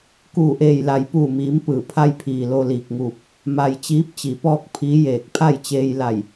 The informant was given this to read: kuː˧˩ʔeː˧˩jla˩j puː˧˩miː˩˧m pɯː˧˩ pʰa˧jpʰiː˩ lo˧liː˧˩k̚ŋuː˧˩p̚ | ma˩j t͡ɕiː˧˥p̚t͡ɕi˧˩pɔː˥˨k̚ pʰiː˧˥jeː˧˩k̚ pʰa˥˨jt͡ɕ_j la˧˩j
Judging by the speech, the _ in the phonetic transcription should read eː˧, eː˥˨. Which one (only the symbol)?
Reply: eː˧